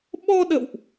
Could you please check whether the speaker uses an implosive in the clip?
yes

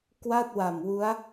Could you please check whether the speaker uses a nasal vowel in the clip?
no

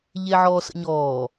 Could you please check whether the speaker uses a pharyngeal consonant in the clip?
yes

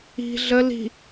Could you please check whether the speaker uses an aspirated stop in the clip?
no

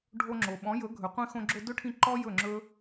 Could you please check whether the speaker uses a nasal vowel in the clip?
yes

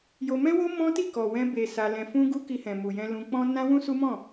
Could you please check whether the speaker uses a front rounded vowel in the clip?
no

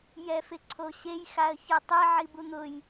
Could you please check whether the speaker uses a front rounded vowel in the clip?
no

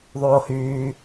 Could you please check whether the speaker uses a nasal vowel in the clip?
no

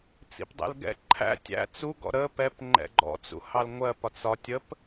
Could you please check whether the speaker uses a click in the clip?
yes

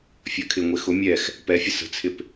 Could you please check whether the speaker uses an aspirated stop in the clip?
yes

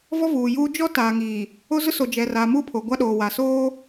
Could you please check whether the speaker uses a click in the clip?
no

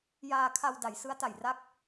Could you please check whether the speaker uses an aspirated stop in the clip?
yes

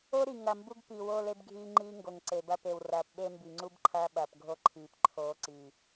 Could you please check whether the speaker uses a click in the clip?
yes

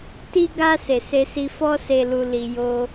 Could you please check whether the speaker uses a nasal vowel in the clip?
no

